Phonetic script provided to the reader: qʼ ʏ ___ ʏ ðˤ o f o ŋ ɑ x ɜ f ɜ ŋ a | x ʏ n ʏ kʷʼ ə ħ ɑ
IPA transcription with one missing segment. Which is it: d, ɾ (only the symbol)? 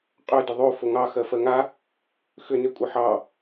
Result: d